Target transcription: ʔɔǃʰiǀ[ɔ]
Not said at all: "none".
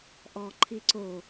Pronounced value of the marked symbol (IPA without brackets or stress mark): o